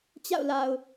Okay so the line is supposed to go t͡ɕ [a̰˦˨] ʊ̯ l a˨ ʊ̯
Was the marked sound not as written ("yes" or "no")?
no